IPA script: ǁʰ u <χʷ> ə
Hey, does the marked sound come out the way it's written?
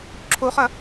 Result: no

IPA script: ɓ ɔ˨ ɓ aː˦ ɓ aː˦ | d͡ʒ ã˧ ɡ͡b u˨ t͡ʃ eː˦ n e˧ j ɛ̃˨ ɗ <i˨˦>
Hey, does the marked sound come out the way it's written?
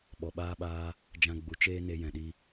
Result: no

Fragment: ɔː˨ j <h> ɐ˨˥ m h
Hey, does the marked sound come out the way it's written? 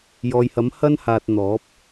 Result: yes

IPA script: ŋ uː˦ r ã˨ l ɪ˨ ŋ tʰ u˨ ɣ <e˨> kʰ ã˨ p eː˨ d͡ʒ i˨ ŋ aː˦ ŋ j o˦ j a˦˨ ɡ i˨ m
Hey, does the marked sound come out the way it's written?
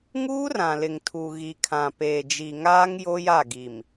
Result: no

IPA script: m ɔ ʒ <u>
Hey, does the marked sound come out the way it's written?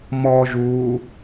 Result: yes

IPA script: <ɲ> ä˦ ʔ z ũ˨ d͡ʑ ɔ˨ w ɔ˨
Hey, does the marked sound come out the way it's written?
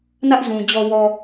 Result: no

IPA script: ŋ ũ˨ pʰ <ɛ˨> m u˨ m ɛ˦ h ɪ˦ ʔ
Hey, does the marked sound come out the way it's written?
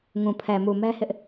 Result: yes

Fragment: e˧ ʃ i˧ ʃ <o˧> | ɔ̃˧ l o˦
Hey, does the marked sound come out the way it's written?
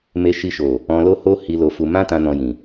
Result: no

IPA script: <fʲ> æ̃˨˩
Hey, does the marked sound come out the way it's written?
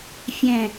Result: yes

